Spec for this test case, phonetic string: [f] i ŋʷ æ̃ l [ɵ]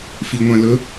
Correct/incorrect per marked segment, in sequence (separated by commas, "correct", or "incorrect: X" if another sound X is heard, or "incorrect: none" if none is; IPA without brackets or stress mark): correct, correct